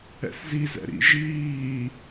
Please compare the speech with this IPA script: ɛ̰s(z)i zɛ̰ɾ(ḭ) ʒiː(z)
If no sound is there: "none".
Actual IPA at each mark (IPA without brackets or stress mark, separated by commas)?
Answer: z, ḭ, none